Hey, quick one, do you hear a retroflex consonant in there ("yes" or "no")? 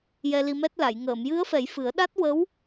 no